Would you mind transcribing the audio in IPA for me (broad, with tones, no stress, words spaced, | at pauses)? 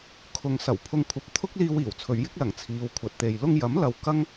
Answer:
kʰʊ˨ŋ sɐ˨˩wpʰʊ˧ŋkʷʰɐ˨˥p̚ t̪ʰʊ˥k̚liː˧w iː˨˩wt͡sʰɵ˨˧ɥjɪ˥k̚lɐ˨˩ŋ t͡sʰiː˨˧wkʷʰɐ˨t̚t̪e˨j lʊ˧ŋjɐ˨˥m lɐ˧wkɐ˥ŋ